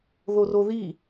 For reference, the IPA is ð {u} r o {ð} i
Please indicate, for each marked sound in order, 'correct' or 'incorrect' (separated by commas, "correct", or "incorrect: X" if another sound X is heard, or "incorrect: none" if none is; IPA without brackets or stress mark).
incorrect: o, correct